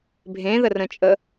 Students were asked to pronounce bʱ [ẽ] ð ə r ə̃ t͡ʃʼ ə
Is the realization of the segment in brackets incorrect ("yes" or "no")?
no